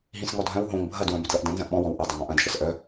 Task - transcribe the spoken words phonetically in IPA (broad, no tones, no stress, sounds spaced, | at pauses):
ɦ ĩ s ŋ ɔ dʱ œ̃ w ɦ õ ŋ bʱ ɐ d w œ̃ b ʏ d l ʌ ʔ d ɐ̃ n z ɐ̃ ʔ ɓ ɔ̃ w ɔ̃ w ʔ ʌ dˤ ʏ ŋ ɔ̃ ʔ ɐ̃ d ʃ ʌ s ʔ œ